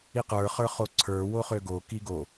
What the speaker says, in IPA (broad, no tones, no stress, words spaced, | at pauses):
iqə˞χə˞ χoǀʰə˞ woχøɡoki ɡo